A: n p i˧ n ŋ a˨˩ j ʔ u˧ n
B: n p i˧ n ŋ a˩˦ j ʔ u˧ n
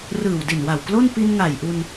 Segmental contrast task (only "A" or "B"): A